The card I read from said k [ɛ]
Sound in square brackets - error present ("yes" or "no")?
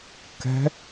yes